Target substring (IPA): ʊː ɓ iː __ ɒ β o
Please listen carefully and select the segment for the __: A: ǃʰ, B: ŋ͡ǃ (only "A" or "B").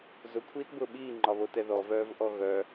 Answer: B